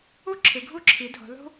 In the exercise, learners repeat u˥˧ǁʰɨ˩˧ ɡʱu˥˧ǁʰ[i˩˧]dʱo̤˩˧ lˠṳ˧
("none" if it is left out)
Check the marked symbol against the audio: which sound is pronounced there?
i˩˧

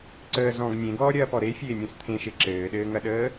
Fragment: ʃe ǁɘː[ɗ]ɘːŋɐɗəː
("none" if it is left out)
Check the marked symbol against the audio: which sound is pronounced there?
ɗ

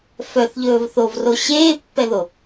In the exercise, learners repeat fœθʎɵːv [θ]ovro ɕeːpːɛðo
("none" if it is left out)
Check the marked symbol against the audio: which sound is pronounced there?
θ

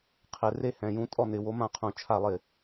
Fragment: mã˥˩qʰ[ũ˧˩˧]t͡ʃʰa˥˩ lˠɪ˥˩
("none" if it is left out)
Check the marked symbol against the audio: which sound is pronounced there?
ũ˧˩˧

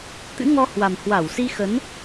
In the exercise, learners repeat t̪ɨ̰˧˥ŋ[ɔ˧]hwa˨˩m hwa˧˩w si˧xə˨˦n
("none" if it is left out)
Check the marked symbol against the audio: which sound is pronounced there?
ɔ˧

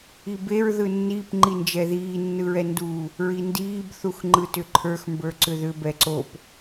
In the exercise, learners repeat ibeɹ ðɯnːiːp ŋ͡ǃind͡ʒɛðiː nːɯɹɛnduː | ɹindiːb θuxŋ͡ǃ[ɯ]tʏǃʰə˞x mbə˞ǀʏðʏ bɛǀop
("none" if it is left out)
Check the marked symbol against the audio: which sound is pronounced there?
ɯ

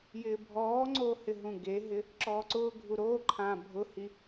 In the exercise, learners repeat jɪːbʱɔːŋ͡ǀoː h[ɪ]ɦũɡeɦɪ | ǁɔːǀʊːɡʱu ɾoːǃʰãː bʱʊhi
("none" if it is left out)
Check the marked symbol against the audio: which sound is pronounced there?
ɪ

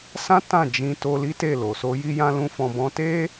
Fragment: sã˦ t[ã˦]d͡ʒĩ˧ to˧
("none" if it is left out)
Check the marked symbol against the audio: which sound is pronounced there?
ã˦˨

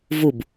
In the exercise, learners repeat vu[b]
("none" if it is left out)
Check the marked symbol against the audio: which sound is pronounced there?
b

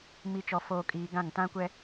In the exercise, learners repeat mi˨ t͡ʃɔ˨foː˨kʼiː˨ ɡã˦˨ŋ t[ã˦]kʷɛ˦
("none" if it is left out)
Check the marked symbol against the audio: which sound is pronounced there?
ã˦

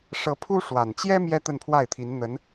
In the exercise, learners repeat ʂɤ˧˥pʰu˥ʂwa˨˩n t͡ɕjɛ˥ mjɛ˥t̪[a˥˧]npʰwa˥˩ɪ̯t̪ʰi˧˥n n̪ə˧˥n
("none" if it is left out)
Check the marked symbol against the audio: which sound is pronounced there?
ə˥˧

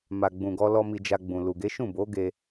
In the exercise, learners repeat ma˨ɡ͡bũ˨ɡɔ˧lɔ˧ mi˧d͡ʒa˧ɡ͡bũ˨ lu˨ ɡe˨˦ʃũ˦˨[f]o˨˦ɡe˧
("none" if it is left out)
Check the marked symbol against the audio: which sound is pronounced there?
b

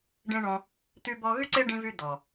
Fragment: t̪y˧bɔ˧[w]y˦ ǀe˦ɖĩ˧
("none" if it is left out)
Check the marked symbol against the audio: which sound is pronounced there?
ɣ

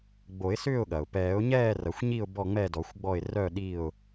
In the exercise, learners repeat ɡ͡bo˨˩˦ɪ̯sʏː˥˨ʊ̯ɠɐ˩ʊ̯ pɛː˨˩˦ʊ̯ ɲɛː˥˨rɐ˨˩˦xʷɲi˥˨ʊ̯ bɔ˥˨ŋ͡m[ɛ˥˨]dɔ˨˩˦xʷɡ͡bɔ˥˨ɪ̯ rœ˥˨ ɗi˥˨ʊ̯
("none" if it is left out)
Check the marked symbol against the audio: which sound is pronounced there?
ɛ˥˨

